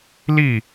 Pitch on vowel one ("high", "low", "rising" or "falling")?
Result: falling